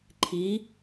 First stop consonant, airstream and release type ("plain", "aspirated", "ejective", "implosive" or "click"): click